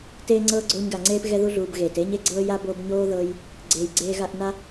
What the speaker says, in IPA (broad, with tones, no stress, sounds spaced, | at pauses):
t eː˦ ŋ͡ǀ ɤː˦ ɡ͡ǀ oː˦ ɲ ɡ a˨ ŋ͡ǀ eː˥ p ɣ ɛ˦ ð u˦ ɮ uː˨ b ɣ eː˩ t eː˥ ɲ e˦ ɡ͡ǀ ɤː˥ j a˥ b o˦ b ɲ oː˥ ð ɤ˦ j | ɡ͡ǀ eː˨ j ɡ͡ǀ eː˦ ɣ a˦ ʔ n a˥